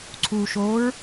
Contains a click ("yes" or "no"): yes